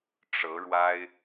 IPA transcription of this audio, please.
ʈ͡ʂ ɤ˧˥ ɻ w a˥ ɪ̯

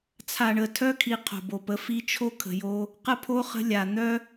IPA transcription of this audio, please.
t͡sʰ a˨ ɳ ə˨ tʰ œ˦ kʰ i˨ qʰ o̤˨ b o˨ p ə˨˦ f i˦ t͡ʃʰ o˦ kʰ ə̤˨ j o˦ | q ə˦ pʰ o˦ χ ə̤˦ lʲ a˨ n̪ œ˦

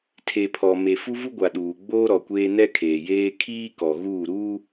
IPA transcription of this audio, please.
tʰ e˨ pʰ ɔ˨ m e˨ f u˦ v u˦ ɡʷ a˨ ɗ uː˨ ɡ͡b oː˦ ɾ ɔ˨ kʷ eː˦ n ɛ˦ kʰ eː˨ j eː˦ kʰ iː˦ k ɔ˨ ɣ uː˦˨ ɾ uː˦

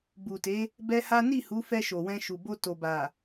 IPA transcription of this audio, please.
b u˨ t e˨˦ | b ɛ˦ h a˦ n i˦˨ h u˨˦ f ɛ˧ ʃ o˨ w ɛ̃˧ ʃ u˨ b o˧ t o˨ b a˨

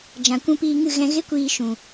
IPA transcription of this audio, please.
d͡ʒ ã˨ kʷ ũ˧ p iː˧ ŋ ɨ˦˨ ɣ ɛ̃˧ ɣ e˦ kʷ iː˧ ʃ ũ˨

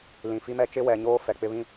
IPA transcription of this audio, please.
l ĩ˨ f i˦ m ɛ˦ t͡ʃ ɪ˦ w ɛ˨ ɲ oː˦ f ɛ˨ k͡p ɪ˦ β ĩ˦

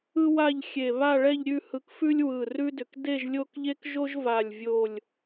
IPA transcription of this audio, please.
ɯ˥ w a˥˧ ʎ xʲ e˧˩ β a˥˧ ɭ ɛ˥˧ ʎ ɾʲ ʉ˥˧ h ɯ˧ k f ʉ˥ lʲ w ɯ˧˩ r ʉ˥ d ʏ˧˩ k d e˥˧ ʒ lʲ o˥˧ k ʎ e˥ k ʒ o˥ ʒ v a˧˩ lʲ vʲ o˧˩ lʲ

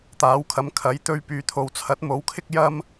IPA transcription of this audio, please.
t̪ aː˨˥ w kʰ ɐ˨˧ m kʰ ɐ˨˥ j t̪ ɵ˧ ɥ p yː˨ t̪ʰ o˨ w t͡sʰ ɐ˨˥ t̚ m o˨˥ w kʰ ɪ˥ k̚ j ɐ˥ m

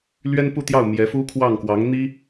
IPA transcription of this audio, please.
l ɥ ɛ˥ n p u˥˧ t̪ j ɑ˥˩ ʊ̯ m j ɛ˧˥ f u˥ kʰ w ɑ˥˩ ŋ k w ɑ˧˥ ŋ n̪ i˥

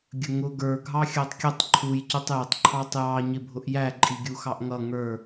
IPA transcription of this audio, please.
ɡʲ ə ŋ ʊ ɡ ə˞ ɡʱ ɑ xʲ ɑ tˤ kʲ ʊ tˤ ǃʰ u j c u tˤ j ɪ tˤ ǃʰ ɑ tˤ j ɑ ɲ ɪ bʱ ʊ ʔ j æ ǃʼ i ɡʲ u x ɑ ʔ ŋ ʌ ŋ ə˞

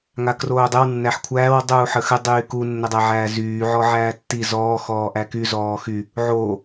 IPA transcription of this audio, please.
ŋ a k r oː dˤ ɘ w nː æ ħ kʷʰ æː w dˤ uː ħ ə x ɘ dˤ yː k u nː ɘ dˤ æ ʕ æː z yː ʕ ɔ ʕ æː tː i z ɔː x ɔː ʔ æ k y z ɔː x y | ʕ oː

